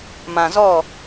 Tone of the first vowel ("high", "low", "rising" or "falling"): low